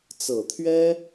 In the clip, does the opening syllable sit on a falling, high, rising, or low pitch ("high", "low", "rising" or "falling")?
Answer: low